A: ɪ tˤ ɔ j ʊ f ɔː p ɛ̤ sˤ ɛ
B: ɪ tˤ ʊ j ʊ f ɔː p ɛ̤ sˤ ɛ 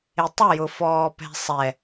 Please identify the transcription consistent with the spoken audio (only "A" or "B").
B